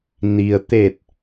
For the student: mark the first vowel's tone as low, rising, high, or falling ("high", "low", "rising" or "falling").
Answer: low